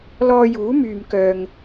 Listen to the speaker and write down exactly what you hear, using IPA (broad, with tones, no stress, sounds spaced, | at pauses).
l ɔː˧ j uː˨˥ m yː˨ m k œː˧ ŋ